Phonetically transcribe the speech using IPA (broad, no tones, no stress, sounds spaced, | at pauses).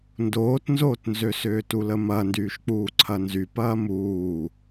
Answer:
n d oː t n z oː t n z ø s ʏː t u l ə m ɐ n d yː ʃ k͡p uː ǀʰ ɐ n z y p ɐː m uː